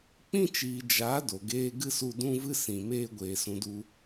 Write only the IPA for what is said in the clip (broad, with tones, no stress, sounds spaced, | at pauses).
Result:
k͡p ĩ˦ t͡ʃ iː˨ d͡ʒ a˨˦ d o˨ ɡ eː˦ ɡ ɨ˦ s u˧ d ũ˦ v ɨ˦ s ĩ˨ m eː˦ ɡʷ eː˨ s ũ˧ d u˦